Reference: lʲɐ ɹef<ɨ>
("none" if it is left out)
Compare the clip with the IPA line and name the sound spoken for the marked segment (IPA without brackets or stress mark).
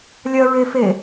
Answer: e